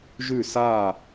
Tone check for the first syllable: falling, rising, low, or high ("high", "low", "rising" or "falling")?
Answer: falling